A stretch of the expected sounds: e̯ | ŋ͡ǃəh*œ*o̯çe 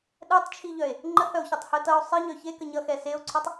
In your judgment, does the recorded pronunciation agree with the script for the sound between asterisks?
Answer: yes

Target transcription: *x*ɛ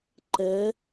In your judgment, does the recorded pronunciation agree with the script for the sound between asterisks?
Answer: no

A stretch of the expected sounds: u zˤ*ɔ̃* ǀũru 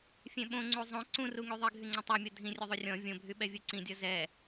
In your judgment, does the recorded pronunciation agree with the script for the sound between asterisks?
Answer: no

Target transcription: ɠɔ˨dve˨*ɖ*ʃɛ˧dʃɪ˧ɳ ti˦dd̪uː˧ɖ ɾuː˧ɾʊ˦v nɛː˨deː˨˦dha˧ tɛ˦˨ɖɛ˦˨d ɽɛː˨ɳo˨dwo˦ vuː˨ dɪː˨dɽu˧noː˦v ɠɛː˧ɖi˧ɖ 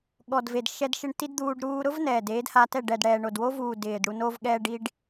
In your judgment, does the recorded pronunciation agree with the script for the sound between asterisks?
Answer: no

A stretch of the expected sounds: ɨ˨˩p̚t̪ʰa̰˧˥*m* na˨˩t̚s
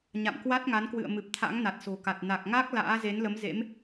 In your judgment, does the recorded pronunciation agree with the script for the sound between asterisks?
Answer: no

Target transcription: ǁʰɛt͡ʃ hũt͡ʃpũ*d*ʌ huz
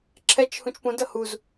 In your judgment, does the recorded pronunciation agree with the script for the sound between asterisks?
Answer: yes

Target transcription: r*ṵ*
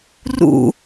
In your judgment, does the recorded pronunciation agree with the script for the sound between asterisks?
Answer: yes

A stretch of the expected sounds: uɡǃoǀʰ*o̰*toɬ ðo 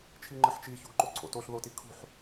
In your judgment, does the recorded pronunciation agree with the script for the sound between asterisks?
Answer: yes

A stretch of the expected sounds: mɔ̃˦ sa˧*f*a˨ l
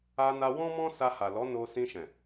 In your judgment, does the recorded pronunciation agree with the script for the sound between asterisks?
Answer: no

